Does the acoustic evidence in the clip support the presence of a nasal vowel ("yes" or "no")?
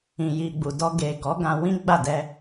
yes